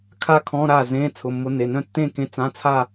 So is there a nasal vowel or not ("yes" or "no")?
yes